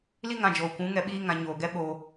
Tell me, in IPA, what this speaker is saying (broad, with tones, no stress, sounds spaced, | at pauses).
l i˦ ŋ ã˧ d͡ʒ oː˨ kʷ ũ˨˦ ŋ ɛ˨ ɓ iː˧ ŋ ã˨ ɲ oː˨ ɡ ɛ˦ ɓ o˧